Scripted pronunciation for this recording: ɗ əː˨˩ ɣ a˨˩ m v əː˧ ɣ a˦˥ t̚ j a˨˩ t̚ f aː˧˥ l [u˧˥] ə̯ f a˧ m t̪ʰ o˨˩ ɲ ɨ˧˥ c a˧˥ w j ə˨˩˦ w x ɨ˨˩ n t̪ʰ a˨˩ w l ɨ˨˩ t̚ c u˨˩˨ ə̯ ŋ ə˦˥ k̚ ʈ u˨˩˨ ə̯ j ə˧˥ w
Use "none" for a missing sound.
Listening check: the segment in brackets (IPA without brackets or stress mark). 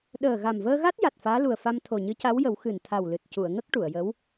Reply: u˨˩